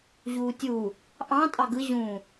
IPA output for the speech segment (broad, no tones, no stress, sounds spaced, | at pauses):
ʑ uː tʲ u | ʔ ɑ̃ tʼ ɑ ɡ ɯ ʑ ũ